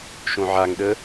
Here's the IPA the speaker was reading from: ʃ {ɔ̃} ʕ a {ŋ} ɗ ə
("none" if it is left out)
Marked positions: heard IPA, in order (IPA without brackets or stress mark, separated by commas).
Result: õ, ŋ